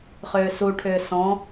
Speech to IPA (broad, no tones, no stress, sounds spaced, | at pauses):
χ ʏː s u ʈʰ ʏː s ɔ̃